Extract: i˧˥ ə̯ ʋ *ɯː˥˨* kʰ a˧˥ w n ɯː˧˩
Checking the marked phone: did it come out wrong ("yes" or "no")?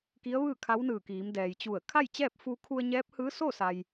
no